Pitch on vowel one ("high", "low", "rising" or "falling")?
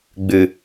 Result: low